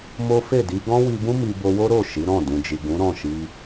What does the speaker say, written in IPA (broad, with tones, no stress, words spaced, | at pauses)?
mo˦ fe˦˨di˧ ɡɔ̃˦wi˧bũ˦ mi˧ bo˧wo˦ ɾo˦˨ ʃi˨˦ ɾɔ̃˦˨ dũ˨d͡ʒi˨ ɡũ˨˦ ɾɔ̃˦˨ʃi˧